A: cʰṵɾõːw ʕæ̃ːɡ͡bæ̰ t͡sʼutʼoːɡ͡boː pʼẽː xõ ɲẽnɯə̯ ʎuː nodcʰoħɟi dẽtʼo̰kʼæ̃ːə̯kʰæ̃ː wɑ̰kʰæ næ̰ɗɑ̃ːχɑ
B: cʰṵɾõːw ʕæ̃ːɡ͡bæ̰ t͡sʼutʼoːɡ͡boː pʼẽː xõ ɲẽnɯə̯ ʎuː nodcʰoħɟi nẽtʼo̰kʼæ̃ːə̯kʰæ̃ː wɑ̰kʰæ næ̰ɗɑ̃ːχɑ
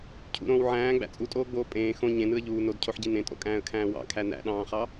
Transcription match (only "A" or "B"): B